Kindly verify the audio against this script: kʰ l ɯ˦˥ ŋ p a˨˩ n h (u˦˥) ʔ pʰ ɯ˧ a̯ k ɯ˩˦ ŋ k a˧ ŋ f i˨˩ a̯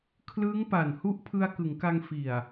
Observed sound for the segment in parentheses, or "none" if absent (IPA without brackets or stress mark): u˦˥